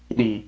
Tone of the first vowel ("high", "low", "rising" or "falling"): low